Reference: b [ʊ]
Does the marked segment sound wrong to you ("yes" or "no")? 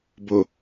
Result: no